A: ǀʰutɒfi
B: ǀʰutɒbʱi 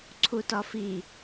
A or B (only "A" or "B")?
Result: A